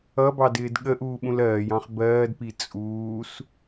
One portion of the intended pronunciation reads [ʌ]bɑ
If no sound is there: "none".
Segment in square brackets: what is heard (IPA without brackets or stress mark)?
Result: ʌ